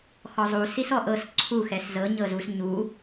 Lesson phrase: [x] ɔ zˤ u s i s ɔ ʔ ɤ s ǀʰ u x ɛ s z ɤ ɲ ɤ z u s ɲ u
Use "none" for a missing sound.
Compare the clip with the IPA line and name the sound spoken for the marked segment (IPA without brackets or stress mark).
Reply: x